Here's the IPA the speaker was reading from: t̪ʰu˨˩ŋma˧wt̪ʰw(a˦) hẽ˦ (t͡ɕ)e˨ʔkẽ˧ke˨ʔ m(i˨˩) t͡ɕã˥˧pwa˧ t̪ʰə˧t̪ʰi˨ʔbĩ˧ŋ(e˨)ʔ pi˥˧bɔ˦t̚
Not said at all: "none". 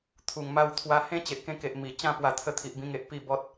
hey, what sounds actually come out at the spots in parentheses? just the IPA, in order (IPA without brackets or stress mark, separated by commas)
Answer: a˧, t͡ɕ, i˨˩, e˨